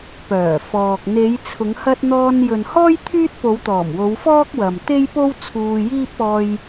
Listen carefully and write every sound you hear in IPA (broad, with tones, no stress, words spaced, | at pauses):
pœː˨˩ fɔː˨k̚ n̪e˨˧jt͡sʰʊ˨˧ŋ hɐ˧t̚ n̪ɔː˧njɵ˨nhɔː˥j t̪ʰyː˥t̚po˨˧wt̪ɔː˨˩mwo˨˧w fɔː˥k̚wɐ˨m t̪e˥jpo˥wt͡sʰuː˧jiː˥p̚ ɔː˧j